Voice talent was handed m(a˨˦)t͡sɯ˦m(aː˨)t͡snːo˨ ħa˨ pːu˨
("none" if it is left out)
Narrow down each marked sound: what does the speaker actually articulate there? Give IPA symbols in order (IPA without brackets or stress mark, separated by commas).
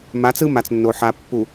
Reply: a˨˦, a˨